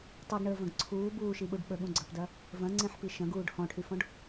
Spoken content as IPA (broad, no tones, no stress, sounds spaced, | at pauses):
tˤ u ɡ ɳ əː v ɐ̃ ɡ ǀʰ uː b uː ʃ i ɓ u ɖ ɓ ə ɠ ũ ɡ͡ǀ ɐ p d ɐ | v ɐ̃ ŋ͡ǀ ẽ ħ p i ʃ ɐ̃ ɡ uː ɖ h ɔ̃ ʈʰ y f ɔ̃ ɖ